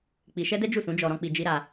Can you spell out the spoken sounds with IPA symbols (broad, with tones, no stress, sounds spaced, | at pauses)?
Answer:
k͡p i˧ ʃ ɛ˦ d ɛ˦ d͡ʒ u˦˨ s ũ˨˦ d͡ʒ ɔ˧ ɾ ɔ̃˦ k͡p i˧ d͡ʒ i˦ ɾ a˧